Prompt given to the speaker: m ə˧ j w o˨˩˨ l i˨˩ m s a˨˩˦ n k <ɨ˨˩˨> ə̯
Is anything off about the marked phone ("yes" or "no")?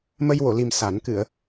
no